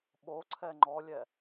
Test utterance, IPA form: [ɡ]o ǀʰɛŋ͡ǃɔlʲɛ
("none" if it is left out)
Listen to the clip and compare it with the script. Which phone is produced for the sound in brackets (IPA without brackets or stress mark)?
ɓ